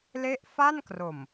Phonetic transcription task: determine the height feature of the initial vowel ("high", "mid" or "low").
mid